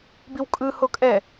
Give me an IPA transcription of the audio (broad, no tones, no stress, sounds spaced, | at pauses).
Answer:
b i w kʼ ɯ h o kʼ ɛ